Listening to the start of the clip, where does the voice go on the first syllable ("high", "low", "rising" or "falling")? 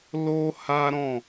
high